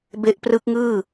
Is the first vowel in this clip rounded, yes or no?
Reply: no